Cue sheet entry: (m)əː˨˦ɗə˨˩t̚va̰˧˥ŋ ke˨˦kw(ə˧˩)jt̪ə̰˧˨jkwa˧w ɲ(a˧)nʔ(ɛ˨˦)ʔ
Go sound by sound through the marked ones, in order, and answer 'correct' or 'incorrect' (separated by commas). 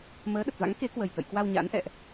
correct, incorrect, incorrect, incorrect